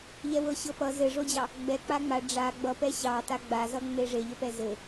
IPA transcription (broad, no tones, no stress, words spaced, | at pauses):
ʎɛwɤɕɤpʌ zɘʐod͡ʑɑ | ɡ͡bɛ k͡paŋ͡ma ɖ͡ʐa ɡ͡bʌpɛ ɕɑ taɡ͡bazʌ ŋ͡meʐeʎəpɛ zɘ